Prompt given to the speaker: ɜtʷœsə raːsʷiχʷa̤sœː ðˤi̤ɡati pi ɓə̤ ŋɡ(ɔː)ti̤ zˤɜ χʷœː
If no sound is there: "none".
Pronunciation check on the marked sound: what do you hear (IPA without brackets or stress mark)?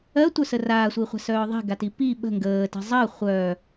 əː